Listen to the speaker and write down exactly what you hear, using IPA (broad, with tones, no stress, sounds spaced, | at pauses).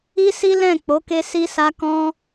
i˦ s i˦ l ɛ̃˦˨ k͡p o˨˦ k e˦ s i˦ s a˦ k ɔ̃˦